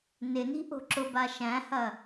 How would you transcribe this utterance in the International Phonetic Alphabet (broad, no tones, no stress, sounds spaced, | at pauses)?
n ɪ n i̤ ʔ o̤ ǁ ʊ b a ʃ æ̃ h ɐ